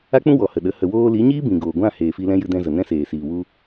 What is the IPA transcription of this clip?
a˦ k͡p ũ˦ w ɔ˨ h ə˨ ɗ ə˨˦ h ə˨ w oː˧ l i˨˦ ɲ iː˦ b ĩ˨ ɡ oː˨ ɡʷ ã˦˨ h eː˨ f i˧ l ɛ̃˦ j ɨ˧ d ɛ̃˧ z ə˨ n ɛ̃˦ s eː˨ s iː˨ w u˧

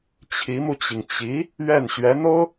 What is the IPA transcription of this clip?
t͡ɕʰ i˧˥ m u˧ t͡ɕ i˩ ŋ t͡ɕ i˧˥ | ɥ ɛ˥˩ n ɕ ɥ ɛ˧˥ n̪ o˥ ʊ̯

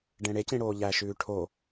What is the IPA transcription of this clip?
ɖ ẽ ɽ e c ĩ ɽ oː ʎ æ ʃ ʉː ʈʰ o

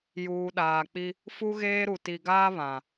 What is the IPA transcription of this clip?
j uː˨ ɗ aː˨ k͡p i˦ | f u˦ ɣ eː˦ ɾ u˨ t i˨ ɡ aː˦ β ã˨

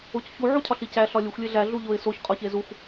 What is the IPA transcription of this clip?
o c ç u ʕ u cʰ ɒ ɬ i c æ ɬ ɒ lʲ u xʷ lʲ e ɮ æ ɮ u ʎ o ɪ̯ s o ç qʼ ɒ ç e z u xʷ

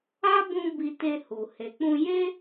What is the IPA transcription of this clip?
a˦ b ũ˧ b i˧ t e˧ h u˨ h e˨ k͡p ũ˧ j e˦

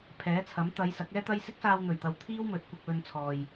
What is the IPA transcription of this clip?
pʰ ɛː˨˥ t͡sʰ ɐ˨˥ m t̪ ɐ˨˧ j s ɐ˨˥ k̚ ɛː˥ t̪ ɐ˥ j s ɪ˥ k̚ s aː˧ w n̪ ɵ˨˩ ɥ t̪ ɐ˨ w t̪ʰ iː˥ w m ɵ˨˥ t̚ kʷ ɐ˧ k̚ w ɵ˧ n t͡sʰ ɔː˨ j

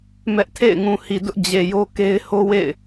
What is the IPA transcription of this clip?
m ɛ˦ ʔ tʰ ḛ˦˨ ɪ̯ ŋ ũ˨ h i˨ d ʊ˦ ʔ d͡ʑ e˨ j o˦ k e˦ ɪ̯ h o˦ w ḛ˦˨ ɪ̯

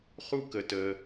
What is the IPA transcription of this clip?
χ u˥ k ə˧ t əː˧

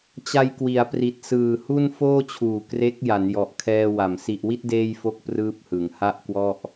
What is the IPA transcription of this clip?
t͡ɕ a˧ j k w i˩˦ a̯ p r i˨˩ t̚ s ɯː˨˩ h u˥˩ n f oː˥˩ t͡ɕʰ uː˨˩ k r e˦˥ k̚ j a˩˦ n j ɔ˨˩ ʔ kʰ ɛː˧ w a˩˦ m s i˨˩ ʔ w i˥˩ t̚ d eː˥˩ j f o˥˩ k̚ p r ɯː˥˩ p̚ h ɯ˩˦ ŋ h a˥˩ ʔ k w ɔ˥˩ ʔ

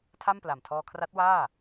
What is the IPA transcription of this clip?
tʰ a˥˩ m p l a˨˩ m tʰ ɔː˧ kʰ r a˦˥ t̚ w aː˥˩

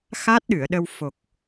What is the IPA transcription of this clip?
x a˦˥ t̚ ɗ ɨ˨˩˨ ə̯ ɗ ə˧ w f o˨˩ k̚

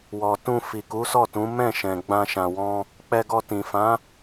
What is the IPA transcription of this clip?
w ɔ˨ t ũ˧ f i˨ k u˨˦ s ɔ˦˨ t ũ˨˦ m ɛ̃˦˨ ʃ ɛ̃˨ ɡ͡b ã˧ ʃ ã˨ w ɔ̃˧ | k͡p ɛ˧ ɡ ɔ˧ t ĩ˨ f ã˨˦

